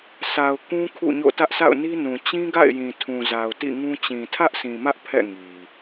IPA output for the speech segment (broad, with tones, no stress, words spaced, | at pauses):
sa˨ʊ̯ kũ˦ kʰṵ˦˨ɲo̰˦˨ tä˦ʔsʰa̰˦˨ʊ̯ni˦nũ˨ t͡ɕĩ˦ɡa̰˦˨ɪ̯ jĩ˨tʰũ˨za˨ʊ̯ tḭ˦˨ŋũ˦ t͡ɕĩ˨tʰä˦ʔsĩ˨mä˦ʔ pʰɛ̰˦˨ ŋi˨